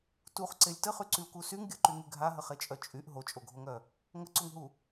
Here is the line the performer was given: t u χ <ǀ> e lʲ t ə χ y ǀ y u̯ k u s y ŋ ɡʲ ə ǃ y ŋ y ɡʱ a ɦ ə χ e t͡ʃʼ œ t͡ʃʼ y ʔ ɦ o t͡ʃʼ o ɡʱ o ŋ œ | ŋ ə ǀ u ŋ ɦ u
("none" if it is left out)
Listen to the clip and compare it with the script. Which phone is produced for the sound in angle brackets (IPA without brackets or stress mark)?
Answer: ǀ